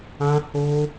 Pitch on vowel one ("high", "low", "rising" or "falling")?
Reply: high